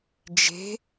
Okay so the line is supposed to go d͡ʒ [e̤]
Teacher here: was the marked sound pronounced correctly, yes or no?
yes